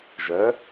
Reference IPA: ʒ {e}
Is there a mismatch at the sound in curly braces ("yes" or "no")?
yes